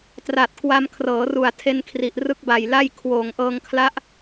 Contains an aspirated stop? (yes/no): yes